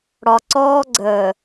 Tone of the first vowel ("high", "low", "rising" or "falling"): low